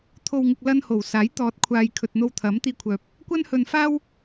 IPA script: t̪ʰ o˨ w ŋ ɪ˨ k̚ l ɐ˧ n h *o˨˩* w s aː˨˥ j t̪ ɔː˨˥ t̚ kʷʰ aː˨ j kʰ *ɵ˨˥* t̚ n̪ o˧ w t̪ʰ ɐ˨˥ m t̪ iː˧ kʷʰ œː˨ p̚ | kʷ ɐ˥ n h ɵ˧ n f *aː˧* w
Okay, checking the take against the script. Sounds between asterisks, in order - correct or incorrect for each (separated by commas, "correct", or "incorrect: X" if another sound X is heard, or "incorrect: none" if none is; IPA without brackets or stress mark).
correct, incorrect: ɵ˨, incorrect: aː˥